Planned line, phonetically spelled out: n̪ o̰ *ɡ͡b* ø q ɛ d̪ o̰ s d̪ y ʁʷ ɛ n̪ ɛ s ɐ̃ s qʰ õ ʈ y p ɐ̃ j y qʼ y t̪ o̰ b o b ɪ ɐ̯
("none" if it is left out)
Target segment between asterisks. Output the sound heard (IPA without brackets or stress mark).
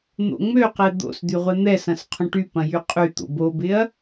ŋ͡m